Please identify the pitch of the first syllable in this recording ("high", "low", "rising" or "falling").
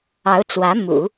rising